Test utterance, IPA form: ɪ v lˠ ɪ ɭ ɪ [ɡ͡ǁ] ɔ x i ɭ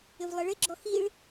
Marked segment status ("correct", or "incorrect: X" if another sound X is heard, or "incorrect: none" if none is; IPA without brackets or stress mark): correct